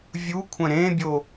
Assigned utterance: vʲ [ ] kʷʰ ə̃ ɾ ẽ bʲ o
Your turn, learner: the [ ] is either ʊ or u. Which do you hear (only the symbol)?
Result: u